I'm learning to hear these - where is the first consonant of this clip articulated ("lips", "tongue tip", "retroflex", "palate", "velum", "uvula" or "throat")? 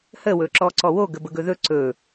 throat